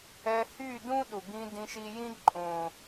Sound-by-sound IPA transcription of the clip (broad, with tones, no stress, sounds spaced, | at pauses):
ɛ˧ h yː˦˨ d ũ˦ ɗ u˨ ɡ ĩ˧ d ĩ˧ ʃ i˧ j ĩ˦ ǃʼ õː˨